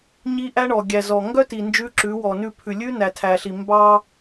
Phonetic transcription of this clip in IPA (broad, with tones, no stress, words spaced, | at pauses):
ɲi˦ʔæ˦ɳɔ˨ ɡʲæ˨zɔ˨ ŋɡœ˦ti˨ nd͡ʒʉ˦ǁʉ˨˦wɔ˨ nʉ˦˨pʰʉ˨ lʲʉ˦ næ˨tʰæ˨ɬi˨ mbɑ˦